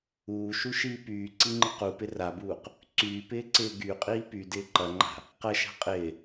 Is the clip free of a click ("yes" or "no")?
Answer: no